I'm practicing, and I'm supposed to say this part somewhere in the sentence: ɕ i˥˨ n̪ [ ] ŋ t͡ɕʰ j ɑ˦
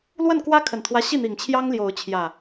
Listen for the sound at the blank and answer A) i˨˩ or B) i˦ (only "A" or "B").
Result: A